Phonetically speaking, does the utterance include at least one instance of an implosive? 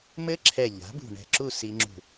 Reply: no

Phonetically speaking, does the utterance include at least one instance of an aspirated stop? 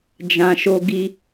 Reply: no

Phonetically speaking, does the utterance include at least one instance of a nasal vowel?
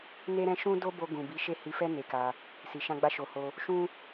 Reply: yes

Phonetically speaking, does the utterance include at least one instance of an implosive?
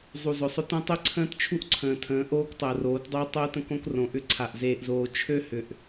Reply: no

